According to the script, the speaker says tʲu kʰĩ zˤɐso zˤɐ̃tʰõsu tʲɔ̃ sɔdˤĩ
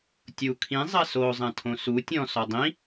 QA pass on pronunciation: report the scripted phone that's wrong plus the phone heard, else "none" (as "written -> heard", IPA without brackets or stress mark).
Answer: none